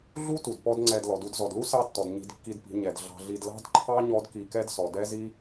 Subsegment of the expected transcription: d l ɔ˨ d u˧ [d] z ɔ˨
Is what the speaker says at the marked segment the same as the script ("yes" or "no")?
yes